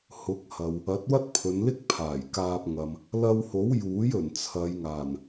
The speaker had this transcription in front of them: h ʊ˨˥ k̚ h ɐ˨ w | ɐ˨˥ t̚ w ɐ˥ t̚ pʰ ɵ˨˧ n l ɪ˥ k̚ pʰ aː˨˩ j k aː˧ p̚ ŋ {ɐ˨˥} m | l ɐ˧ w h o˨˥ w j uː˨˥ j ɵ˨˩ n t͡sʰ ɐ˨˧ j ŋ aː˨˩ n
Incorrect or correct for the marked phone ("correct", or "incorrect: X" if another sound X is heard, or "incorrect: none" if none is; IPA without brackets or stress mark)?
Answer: incorrect: ɐ˨